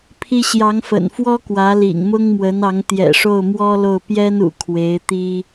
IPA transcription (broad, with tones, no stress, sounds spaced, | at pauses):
pʰ i˥ ɕ j ɑ˧˥ ŋ f ə̰˨˩ n f w ɔ˥ k w ä˧˥ l ḭ˨˩ ŋ m ʊ˥ ŋ m w ə˧˥ n ɑ˧˥ ŋ t̪ j ɛ̰˨˩ ʂ o˥˩ ʊ̯ m w ɔ˥ l o˥˩ ʊ̯ p j ɛ˥ n ṵ˨˩ kʰ w e˧˥ ɪ̯ t̪ i˥